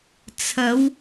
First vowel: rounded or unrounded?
unrounded